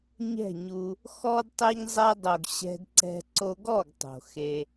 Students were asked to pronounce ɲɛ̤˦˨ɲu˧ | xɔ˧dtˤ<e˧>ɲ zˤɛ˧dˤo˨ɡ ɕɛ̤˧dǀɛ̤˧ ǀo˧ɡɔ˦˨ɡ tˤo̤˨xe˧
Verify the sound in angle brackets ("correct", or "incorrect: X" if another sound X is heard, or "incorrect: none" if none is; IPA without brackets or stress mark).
correct